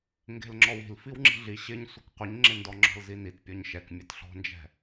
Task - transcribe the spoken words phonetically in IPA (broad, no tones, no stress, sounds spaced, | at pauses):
ŋ ɡ e̤ l ŋ͡ǁ ɔ w i̤ l f i w ŋ͡ǁ i̤ ɮ i ɕ ɪ ɲ sʷ ɪ k qʷ ɪ ɲ ŋ͡ǁ ɪ n d ɔ ŋ͡ǁ ɔ̤ l z i n i t pʲ ɔ ɲ ʃ ɛ k mʲ ɛ t ɬ ɔ̤ n d͡ʒ ɛ̤